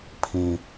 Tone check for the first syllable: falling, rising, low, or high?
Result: high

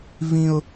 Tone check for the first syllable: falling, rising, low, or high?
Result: high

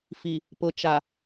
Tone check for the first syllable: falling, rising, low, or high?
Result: low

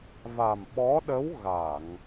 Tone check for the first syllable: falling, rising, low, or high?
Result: low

